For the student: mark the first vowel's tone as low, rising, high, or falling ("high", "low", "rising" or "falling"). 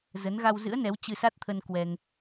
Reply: rising